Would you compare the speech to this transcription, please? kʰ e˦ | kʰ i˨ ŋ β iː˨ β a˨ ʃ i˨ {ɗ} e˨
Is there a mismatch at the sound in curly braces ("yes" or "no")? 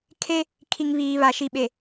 yes